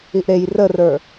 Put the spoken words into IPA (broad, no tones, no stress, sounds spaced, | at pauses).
i ʔ ɾ e j r ə r ə˞